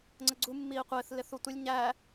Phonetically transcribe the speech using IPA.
ŋ͡ǀəɡ͡ǀu mːiːqʷɪːθ lɪθutʷɪlʲ ɲæ

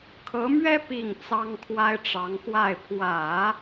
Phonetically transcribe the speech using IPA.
kʰɤ˧˥mɥɛ˥ pi˥˩ŋ t͡sɑ˥ŋkʰwa˥ɪ̯ʈ͡ʂɑ˧˥ŋxwa˥˩ɪ̯ pʰwä˨˩˦

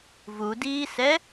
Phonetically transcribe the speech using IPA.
vudiːsɛ

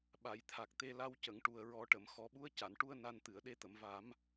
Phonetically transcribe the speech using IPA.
ɓa˨˩˨jt̪ʰa˨˩k̚t̪e˧ la˧wcə˨˩˨ŋʈu˨˩ə̯ ɹɔ˨˩˦ʈə˨˩˨m xɔ˨˩˦ɓu˧˥ə̯ ca˨˩˨nʈu˧ə̯ na˧nt̪ɨ˨˩˨ə̯ ɗe˧t̪ə˨˩˨mva˨˩˦m

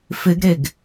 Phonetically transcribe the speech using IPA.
fɪɡɾeɡ

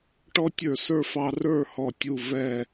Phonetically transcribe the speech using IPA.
ʈɔ˥tʲə˞˧˩sə˞˥fɑ˧ rə˞˥˧hɔ˧˩tʲu˧˩ vɛː˧˩

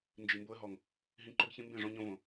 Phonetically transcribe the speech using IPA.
nd͡ʒi˨mbo˧ə̯ɦɔ˨ŋ | ɦĩ˧ǃo˦ɡçĩ˦ mbẽ˦˨ʐõ˧ɲõ˧võ˨

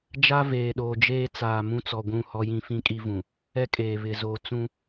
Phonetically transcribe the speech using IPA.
d͡ʒa˦veː˨ɗoː˨d͡ʒeː˦ t͡saː˨ mũ˦t͡sɔ˨ ɡʷũ˦˨hɔ˦jĩ˦ fĩ˦kʼi˦vũ˨ | ɛ˦kʼeː˨ βɪ˨zoː˨ t͡sũ˦

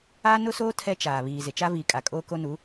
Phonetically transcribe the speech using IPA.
aː˦nʊ˦soː˦ tʰɛ˦t͡ʃaː˨βiː˨ zɪ˨t͡ʃa˦viː˨ kʼa˨kʼoː˦ko˦nu˨˦

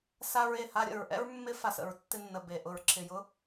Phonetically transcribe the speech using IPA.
sa˧ɹe˨ ha˧ɾʲə̰˨ɹʔɛ̰˦ɹ mːɪ˧fa˨sə̰˨ɹ tːɪ˧nːə˨ be˨ ʔʊ˨ɹǁɪ˨jʊ˦

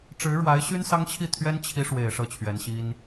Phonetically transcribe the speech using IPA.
ʈ͡ʂɻ̩˧˥ɻwa˧˥ɪ̯ɕy˥n sɑ˥ŋt͡ɕʰi˥˩ t̪ʰɥɛ˥nt͡ɕʰi˧˥ ʂwe˨˩ɪ̯ ʂɤ˥˩t͡ɕʰɥɛ˧˥nɕi˥n

